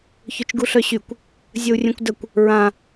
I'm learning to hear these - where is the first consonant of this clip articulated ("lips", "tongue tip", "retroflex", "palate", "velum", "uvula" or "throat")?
palate